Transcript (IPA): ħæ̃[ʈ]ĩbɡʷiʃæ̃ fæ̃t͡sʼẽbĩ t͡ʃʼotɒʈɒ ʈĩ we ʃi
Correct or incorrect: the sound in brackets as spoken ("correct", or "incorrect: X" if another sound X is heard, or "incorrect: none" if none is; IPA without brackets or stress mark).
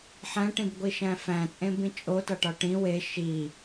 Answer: correct